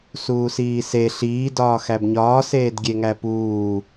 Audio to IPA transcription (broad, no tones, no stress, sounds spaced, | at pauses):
s uː s iː s e ɬ iː d ɒː x æ b ɲ ɒː s eː d ɡʲ e ŋ æ p uː